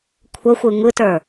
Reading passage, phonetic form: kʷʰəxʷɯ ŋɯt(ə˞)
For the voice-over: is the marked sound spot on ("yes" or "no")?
yes